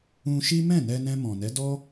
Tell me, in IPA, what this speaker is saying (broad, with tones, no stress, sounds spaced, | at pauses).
ũ˧ ʃ i˦ m ɛ̃˦˨ n ɛ˧ n ɛ̃˧ m ɔ̃˨ n ɛ˨˦ d ɔ˦